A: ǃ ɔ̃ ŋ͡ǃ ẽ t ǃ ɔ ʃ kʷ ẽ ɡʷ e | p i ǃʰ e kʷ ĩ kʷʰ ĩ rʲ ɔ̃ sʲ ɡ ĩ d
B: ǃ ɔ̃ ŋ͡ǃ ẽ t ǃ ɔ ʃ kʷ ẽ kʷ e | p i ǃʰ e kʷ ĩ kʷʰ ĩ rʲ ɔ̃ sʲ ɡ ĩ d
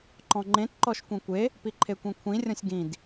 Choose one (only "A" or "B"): B